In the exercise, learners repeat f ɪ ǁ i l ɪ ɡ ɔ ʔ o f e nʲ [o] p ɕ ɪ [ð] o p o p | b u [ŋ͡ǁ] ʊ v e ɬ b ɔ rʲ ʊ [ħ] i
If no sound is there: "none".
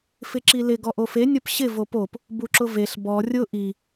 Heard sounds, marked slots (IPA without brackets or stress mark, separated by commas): o, v, ǁ, ʔ